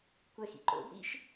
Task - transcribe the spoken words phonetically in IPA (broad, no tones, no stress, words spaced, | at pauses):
kʷɛxḭ ǃo̰bɾḭʃ